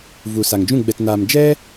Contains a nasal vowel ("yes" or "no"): yes